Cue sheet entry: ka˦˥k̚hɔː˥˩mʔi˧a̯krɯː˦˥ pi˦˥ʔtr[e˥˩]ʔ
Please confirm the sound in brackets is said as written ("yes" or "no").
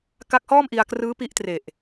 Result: no